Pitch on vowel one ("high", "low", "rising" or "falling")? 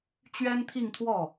high